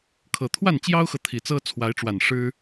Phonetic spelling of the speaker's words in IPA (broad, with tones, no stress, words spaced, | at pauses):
kʰɤ˨˩t̪ʰwa˥˨nt͡ɕjɑ˦ʊ̯xɤ˨ t̪ʰi˨˩t͡sɤ˦ t͡sʰwa˨˦ɪ̯ʈ͡ʂwa˨˩n ʂɻ̩˦